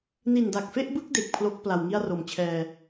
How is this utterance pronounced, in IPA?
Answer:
n i˨˩ n d a˨˩ k̚ f e˥˩ ʔ b ɯ˥˩ k̚ d e˨˩ k̚ pʰ l o˦˥ k̚ p l a˨˩ w ŋ i˥˩ a̯ r o˨˩ m t͡ɕʰ ɛː˧

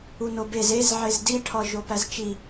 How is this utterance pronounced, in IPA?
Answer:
u n o b e z e z ʕ e z d i ʈʰ ɒ ʒ o p æ z t͡ʃ i

